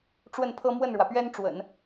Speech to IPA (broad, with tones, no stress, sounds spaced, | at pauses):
ʈ͡ʂ w ə˥˩ n pʰ ɤ˥ m w ə˥˩ n ɻ w ä˩ p ɥ ɛ˥ n ʈ͡ʂ w ə̰˨˩˦ n